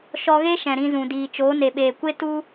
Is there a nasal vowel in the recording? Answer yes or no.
yes